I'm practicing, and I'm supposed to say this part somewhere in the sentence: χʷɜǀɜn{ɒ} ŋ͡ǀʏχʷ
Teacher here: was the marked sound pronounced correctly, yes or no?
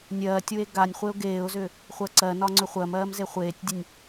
yes